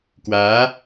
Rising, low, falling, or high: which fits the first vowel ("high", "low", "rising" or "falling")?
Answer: rising